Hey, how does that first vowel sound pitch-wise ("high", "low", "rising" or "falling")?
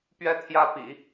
high